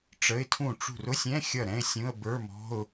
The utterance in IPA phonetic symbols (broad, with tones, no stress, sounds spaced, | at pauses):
ʈ͡ʂ ə˧˥˧ ɪ̯ tʰ ũ˥˩ ʈ͡ʂ ṳ˥˩ r ʊ˧˥˧ sʲ ɛ̃˧˥˧ xʲ ʌ˥˩ ɾ ɛ̃˧˥˧ ɪ̯ sʲ ũ˧˥˧ ə̯ b ə˞˧˥˧ m ɔ̤˧˥˧ ʊ̯